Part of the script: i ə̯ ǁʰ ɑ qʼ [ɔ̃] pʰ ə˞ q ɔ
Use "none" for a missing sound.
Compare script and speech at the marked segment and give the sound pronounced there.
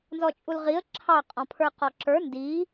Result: ɔ̃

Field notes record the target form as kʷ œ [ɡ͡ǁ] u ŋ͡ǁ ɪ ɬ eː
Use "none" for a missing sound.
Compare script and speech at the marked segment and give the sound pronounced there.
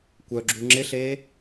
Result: ɡ͡ǁ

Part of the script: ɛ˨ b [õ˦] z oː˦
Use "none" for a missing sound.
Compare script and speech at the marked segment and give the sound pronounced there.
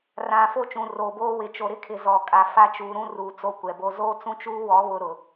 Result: o˦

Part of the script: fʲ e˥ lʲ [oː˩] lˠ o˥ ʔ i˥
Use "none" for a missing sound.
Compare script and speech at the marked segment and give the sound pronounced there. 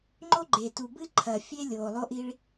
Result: oː˩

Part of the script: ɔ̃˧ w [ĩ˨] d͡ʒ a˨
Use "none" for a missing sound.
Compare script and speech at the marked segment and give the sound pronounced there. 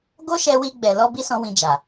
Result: ĩ˨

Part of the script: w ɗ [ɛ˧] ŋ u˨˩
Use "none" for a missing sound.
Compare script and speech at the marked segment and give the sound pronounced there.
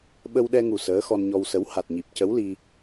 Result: ɛ˧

